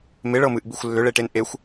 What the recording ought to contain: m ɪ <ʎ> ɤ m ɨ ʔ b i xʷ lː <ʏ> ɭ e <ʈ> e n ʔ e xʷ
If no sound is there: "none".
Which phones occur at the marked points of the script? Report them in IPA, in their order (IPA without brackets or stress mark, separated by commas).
ɭ, ʏ, ʈ